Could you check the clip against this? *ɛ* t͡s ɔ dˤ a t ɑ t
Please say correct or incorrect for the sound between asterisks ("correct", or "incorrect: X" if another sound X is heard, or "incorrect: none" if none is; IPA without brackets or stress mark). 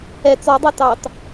correct